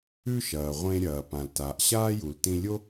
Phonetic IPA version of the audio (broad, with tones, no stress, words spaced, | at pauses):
ʉ˧ ʃɐː˩ʁʷẽ˧ɾʲɐː˩ pã˩ltaː˩ʔɕaː˥ ju˩ltĩ˧lʲo˥